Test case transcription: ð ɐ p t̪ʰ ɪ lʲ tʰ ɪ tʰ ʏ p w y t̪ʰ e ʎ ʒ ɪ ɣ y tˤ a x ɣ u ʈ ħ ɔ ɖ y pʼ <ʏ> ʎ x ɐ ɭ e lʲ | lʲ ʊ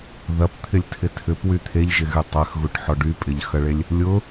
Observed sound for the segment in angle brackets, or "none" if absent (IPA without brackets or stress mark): ɪ